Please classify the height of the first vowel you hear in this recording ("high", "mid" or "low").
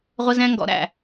mid